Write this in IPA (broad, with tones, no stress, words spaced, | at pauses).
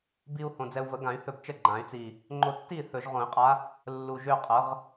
bi˧u̯ hõ˨˩d͡zɛ˧u̯və˨˩˦ɡã˨˩˦y̯ θɵ˧bt͡ʃə˥˨ɡ͡ǃã˨˩˦y̯t͡si˨˩ | ŋ͡ǃo˧tːi˥˨ θɵ˨˩˦ʒʁõ˨˩˦i̯qʼa˧˥ | lːu˨˩ ʒø˥˨qʼə˩˥ʁ